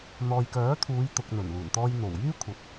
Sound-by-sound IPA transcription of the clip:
n̪ɔː˨jkœː˨˥t̪ʰuː˨˧j t̪ʊ˨k̚n̪ɵ˨˩nluː˨˩nt̪ɔː˧j n̪o˨˩wjyː˥kʷʰɐ˨p̚

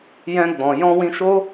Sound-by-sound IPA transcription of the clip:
jɛ̃˧ɡ͡bɔ̃˨ jɔ̃˧wĩ˧ʃo˦

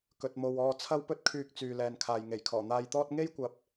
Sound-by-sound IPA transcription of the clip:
kɵ˨t̚mo˨w ɔː˧ t͡sʰɐ˥wpɵ˥t̚kʰyː˧k̚ t͡syː˨lɛː˨nkʰaː˨j ŋe˨˩jkʰɔː˨˩ n̪aː˧jt̪ɔː˥t̚ ŋe˥jkʷɐ˨p̚

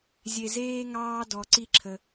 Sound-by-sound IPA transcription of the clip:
zʲe˧zeː˥ŋɑː˥dɔ˧ ǀi˥ǁʰə˧

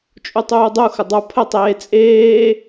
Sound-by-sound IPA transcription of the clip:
t͡ʃʼutˤuːdˤuxə dˤə˞pʰətˤeː t͡sʼeː

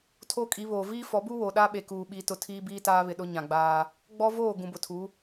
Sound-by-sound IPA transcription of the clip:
tʰo˦kʼi˨˦βoː˨ viː˦fɔ˨˦bu˦ wo˨ɗa˦ɓe˨ kuː˨ɓi˨˦tʊ˨ tʰiː˦biː˦taː˦βɪ˨ ɗʊ˦ɲã˨ɡ͡baː˦ | ɡ͡bɔ˦voː˦˨ ɡũ˨bʊ˨tʰu˨˦

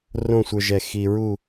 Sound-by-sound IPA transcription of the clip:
rõ˥˧sʷə˞˧ʒɛ˧˩ xi˧ɹu˥˧

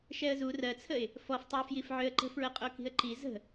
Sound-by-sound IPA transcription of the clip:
ʃɛə̯zu rɜt͡sʰəɪ̯ | fɔftˤəʊ̯fjif ʕøə̯ǃə̤fɹəqʼo ki̤ə̯ǃi zə̤

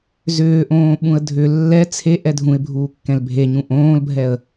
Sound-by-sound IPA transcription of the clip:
zʏːʔõː ɓũə̯dʱʏ lːɛ t͡sʰe ʔɛdʱũɪ̯bʱuː kːɛ̃lbʱe ɲũʔõːlbʱɛə̯

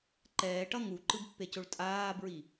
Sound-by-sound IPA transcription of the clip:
ǃɛːʈʌ ŋuǃɯbpːecoɭ tʼaːbɹi

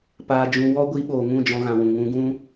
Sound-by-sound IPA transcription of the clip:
paː˧d͡ʒũ˧ wɔ˦ ɡʷi˧ɓoː˨ŋũ˦˨ d͡ʒɔ̃˧ɣã˨ wũ˨ ŋũ˧ɡũ˦

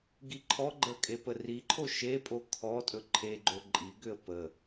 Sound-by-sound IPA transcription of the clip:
ɡiǃʰɔɡ͡ǃə kʼepəriǃʰo ʃepʼo kʰɔ tʼɵǃʰeɡ͡ǃo ǃʼiɡʏə̯ pə

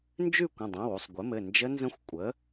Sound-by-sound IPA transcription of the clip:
nd͡ʒʉ˥˧kʷə̃˩˧˩dˤõ˩˧˩wu˥˧sˤ ɡʷɘ˩˥mɘ˩˧˩ nd͡ʒə˦˥nzə̃˦˥xʷ kʷʼə˩˥

